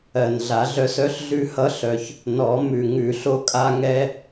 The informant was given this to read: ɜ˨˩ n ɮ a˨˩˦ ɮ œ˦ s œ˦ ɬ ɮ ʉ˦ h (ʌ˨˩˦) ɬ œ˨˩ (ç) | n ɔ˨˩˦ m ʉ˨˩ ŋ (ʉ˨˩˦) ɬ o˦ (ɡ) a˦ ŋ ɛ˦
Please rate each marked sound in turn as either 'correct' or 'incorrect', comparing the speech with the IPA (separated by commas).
incorrect, correct, correct, incorrect